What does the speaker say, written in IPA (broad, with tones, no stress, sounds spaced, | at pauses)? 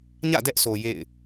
ɲ ä̰˦˨ d ɛ˦ ʔ s o˨ j ḛ˦˨ ɪ̯